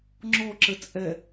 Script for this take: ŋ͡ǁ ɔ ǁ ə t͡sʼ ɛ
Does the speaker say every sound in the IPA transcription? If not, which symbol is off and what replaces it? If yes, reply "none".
none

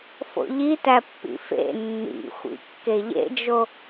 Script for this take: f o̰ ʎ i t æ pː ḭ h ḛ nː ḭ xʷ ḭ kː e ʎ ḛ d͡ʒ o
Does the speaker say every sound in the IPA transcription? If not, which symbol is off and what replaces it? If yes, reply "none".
h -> f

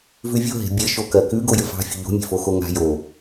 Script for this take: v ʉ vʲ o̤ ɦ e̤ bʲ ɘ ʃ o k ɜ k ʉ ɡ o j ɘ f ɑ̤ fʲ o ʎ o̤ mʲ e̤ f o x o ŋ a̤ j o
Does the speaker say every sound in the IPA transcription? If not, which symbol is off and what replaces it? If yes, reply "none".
none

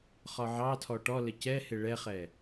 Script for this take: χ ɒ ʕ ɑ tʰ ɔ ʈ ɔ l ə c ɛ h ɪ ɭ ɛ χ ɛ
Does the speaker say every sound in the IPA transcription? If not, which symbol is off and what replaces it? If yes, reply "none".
none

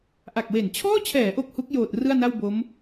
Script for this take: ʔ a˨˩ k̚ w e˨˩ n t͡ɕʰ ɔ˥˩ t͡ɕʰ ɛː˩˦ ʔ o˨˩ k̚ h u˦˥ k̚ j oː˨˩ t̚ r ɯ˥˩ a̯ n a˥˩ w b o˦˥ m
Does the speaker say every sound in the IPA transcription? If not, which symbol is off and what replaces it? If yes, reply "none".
ɔ˥˩ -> ɔː˥˩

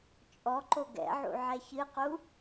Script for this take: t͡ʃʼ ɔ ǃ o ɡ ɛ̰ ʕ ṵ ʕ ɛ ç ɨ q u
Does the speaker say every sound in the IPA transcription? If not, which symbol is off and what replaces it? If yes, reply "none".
none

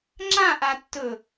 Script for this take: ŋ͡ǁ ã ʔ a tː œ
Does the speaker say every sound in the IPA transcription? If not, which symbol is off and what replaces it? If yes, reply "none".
œ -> ɵ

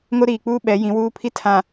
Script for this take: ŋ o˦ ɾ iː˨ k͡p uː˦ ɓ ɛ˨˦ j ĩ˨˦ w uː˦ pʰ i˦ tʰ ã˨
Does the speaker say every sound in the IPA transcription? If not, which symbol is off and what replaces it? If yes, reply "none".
none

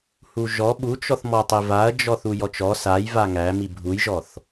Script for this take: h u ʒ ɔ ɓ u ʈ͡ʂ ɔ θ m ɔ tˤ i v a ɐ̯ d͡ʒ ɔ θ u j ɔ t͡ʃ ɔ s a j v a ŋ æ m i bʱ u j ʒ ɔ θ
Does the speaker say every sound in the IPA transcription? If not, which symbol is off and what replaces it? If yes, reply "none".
ʈ͡ʂ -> t͡ʃ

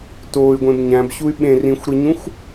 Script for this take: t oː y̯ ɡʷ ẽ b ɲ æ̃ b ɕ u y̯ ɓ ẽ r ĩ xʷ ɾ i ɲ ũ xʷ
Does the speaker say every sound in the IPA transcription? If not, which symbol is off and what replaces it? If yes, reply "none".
none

